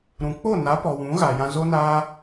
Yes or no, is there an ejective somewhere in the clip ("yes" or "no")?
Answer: no